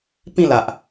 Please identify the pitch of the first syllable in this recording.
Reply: falling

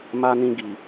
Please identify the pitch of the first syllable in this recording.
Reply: high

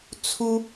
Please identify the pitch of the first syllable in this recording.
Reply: high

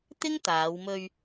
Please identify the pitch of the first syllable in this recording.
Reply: high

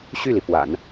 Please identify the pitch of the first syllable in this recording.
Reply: falling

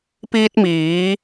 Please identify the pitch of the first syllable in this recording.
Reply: high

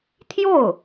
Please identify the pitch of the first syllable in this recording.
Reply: falling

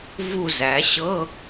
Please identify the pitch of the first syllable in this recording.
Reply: falling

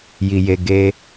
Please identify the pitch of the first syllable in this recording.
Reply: high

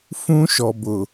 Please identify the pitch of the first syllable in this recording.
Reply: high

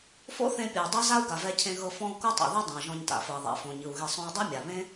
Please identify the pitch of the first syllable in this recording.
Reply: high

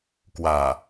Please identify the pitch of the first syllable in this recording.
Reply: low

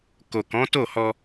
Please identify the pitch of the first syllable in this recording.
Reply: low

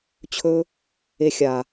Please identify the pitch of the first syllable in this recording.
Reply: high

